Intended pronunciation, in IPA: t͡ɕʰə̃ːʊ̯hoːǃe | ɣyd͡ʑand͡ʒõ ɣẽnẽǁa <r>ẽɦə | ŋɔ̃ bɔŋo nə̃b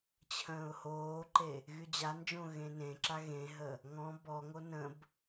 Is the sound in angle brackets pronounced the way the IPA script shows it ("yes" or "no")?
no